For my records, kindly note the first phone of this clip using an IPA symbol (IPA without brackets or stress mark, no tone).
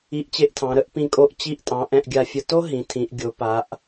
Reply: i